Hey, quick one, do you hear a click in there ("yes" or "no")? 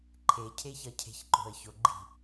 yes